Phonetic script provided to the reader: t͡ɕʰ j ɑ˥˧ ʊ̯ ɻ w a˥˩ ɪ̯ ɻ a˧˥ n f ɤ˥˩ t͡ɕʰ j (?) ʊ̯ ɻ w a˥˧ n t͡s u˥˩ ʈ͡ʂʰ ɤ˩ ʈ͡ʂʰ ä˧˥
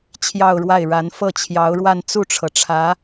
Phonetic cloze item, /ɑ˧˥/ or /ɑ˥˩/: ɑ˧˥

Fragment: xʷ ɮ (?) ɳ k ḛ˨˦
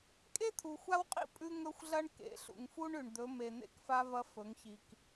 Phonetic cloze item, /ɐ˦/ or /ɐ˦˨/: ɐ˦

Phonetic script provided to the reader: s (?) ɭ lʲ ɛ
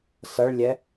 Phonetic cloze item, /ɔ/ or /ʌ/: ʌ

